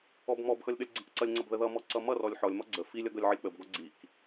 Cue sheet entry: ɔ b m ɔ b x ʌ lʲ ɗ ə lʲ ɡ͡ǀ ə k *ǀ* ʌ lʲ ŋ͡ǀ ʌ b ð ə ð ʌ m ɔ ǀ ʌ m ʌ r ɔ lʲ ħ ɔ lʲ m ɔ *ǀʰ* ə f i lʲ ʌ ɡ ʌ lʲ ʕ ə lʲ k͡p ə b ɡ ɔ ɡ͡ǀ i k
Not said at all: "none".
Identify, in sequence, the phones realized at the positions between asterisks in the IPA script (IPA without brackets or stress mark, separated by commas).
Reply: ǀ, ɡ͡ǀ